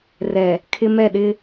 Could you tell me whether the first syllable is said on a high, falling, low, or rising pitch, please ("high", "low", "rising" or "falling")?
low